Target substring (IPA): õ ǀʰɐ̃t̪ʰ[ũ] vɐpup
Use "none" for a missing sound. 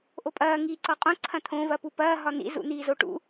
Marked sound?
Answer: õ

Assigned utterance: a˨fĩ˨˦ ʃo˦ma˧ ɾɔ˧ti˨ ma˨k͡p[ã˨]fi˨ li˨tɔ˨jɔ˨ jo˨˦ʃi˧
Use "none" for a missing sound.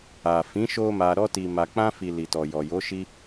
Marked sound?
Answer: ã˧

